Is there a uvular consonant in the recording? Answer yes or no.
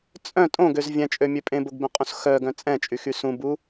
yes